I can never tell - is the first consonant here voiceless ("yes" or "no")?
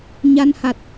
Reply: no